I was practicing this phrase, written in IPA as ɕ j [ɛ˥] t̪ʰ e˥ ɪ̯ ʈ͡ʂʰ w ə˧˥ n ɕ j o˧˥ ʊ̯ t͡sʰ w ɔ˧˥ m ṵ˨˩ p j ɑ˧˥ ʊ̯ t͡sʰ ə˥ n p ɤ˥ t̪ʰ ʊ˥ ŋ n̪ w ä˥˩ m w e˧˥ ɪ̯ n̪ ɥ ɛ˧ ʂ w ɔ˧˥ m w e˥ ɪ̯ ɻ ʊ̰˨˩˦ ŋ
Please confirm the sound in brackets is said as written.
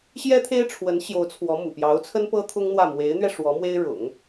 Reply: yes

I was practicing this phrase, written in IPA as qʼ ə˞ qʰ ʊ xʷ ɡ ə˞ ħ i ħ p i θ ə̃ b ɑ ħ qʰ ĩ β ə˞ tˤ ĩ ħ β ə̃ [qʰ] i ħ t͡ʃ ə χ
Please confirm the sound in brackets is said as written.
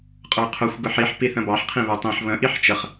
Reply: no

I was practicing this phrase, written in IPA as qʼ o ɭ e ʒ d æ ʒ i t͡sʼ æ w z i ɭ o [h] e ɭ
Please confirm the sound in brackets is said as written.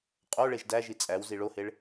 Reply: yes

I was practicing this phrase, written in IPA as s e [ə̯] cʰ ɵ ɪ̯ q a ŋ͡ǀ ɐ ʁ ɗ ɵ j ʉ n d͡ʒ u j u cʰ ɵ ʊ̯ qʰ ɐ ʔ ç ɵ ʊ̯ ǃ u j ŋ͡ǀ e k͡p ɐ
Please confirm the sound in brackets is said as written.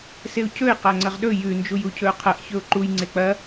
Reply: no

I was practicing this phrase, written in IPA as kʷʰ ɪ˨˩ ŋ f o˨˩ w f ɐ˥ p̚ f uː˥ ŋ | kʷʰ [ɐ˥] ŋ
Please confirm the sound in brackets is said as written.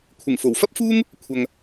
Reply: no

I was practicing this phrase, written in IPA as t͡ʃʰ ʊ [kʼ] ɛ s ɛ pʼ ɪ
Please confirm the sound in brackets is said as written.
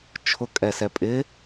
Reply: yes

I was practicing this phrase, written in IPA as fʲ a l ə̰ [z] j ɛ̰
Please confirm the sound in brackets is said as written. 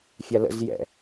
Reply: yes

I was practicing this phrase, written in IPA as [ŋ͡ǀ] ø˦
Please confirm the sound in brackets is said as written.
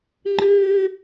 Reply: no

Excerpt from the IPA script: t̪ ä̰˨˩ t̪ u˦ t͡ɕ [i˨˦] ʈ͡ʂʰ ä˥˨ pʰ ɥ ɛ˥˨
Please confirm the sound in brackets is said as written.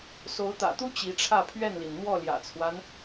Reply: yes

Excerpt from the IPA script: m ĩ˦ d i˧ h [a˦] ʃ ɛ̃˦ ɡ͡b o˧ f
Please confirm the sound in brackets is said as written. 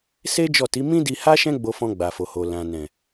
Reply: yes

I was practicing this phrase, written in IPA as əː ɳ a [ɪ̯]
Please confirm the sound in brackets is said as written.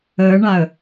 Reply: no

